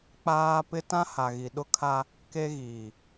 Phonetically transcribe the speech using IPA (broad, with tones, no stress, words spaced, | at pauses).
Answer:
k͡paː˦ pɪ˦tã˦ha˨ ɣi˨ɗʊ˦kʰa˦ | ke˦ɣiː˨